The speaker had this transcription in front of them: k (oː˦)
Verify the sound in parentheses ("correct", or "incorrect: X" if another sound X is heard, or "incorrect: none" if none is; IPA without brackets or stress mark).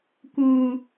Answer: incorrect: uː˦